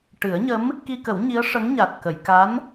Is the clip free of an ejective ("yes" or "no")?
yes